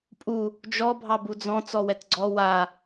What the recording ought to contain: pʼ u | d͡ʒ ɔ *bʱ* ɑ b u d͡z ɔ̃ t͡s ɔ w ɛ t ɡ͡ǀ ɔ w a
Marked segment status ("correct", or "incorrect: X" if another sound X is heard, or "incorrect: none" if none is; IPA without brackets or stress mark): correct